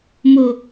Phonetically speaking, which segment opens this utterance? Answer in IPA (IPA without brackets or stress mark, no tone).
m